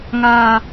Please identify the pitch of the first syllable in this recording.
low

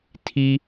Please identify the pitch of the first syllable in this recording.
high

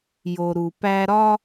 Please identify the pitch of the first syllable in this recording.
low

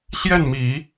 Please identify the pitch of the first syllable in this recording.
falling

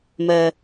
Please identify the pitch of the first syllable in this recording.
low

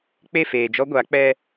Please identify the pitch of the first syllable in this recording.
falling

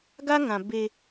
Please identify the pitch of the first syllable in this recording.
high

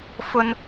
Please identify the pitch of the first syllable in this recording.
high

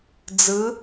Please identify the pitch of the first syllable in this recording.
rising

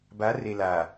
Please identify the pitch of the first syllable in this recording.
rising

